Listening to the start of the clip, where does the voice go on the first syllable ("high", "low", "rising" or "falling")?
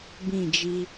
falling